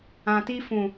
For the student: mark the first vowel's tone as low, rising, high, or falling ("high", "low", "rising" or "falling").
low